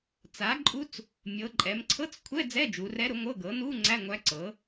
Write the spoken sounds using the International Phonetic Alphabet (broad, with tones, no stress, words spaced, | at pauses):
t͡sa˩˥ǃʼu˧˥t͡s | mʲɤ˩˧ ǃʼɛ˩˧mǀʰɤ˧˥˧t͡skʷʰɛ˧˥˧ d͡zɛ˧˥˧d͡ʒu˩˧rɛ˧˥ɾʊ˩˥ ŋʷɤ˧˥˧ɡɤ˩˥ nu˧˥˧ ŋ͡ǀæ˧˥˧ŋʷæ˧˥ǀɤ˩˥